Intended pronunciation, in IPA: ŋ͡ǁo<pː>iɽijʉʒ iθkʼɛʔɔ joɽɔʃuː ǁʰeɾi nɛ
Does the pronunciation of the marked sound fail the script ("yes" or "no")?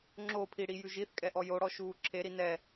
yes